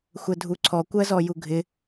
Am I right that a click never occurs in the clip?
no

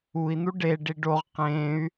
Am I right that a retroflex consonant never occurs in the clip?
no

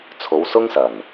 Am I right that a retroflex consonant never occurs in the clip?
yes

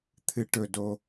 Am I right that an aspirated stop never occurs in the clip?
no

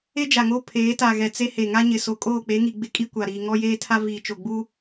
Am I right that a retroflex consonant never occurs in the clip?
yes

